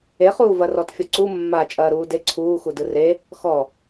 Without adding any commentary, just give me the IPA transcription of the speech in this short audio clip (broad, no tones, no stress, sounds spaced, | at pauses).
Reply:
e χ uː v ɐ r ɔ t fʲ ɔ ǀ u mː a t͡ʃʼ ɐː ɾ uː d e ǀʰ uː x u d ɯ r e | x ɔ